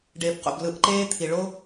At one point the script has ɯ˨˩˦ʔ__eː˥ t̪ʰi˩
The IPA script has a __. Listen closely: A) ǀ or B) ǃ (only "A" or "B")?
B